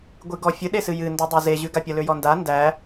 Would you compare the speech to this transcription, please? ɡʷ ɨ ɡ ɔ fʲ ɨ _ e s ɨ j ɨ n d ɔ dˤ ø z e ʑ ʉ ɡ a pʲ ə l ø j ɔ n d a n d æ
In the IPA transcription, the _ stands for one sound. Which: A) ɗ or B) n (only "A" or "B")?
A